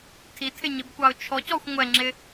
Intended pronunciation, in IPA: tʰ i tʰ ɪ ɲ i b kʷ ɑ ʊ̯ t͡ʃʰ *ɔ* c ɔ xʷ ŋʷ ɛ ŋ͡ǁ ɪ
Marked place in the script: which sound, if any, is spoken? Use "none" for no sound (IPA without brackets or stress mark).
ɔ